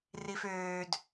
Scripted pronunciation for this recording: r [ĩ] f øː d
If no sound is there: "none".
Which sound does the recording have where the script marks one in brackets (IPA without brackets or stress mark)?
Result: i